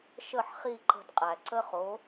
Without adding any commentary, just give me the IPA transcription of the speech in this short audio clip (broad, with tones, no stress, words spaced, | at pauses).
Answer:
ʃə˥˩ħχi˥˩ǃə̤˧d qʼæ˩ǀə˥χo˩˥